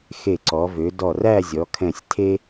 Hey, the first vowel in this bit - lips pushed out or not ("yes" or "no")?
no